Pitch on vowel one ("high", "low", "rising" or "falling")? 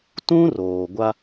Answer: high